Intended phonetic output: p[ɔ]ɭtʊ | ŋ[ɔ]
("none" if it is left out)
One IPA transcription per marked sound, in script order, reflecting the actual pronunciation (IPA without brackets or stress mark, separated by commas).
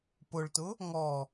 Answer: ʊ, ɔ